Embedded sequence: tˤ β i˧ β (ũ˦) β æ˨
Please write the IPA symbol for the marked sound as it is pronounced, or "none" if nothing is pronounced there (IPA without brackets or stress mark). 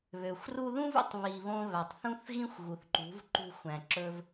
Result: õ˦